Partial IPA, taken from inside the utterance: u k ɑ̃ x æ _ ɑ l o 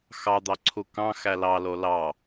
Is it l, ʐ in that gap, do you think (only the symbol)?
l